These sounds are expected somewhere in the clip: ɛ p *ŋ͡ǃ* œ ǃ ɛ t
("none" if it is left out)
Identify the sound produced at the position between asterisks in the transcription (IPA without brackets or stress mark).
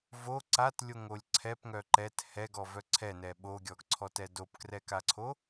ŋ